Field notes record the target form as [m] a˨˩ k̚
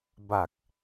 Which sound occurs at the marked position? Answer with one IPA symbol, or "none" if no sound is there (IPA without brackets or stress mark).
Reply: b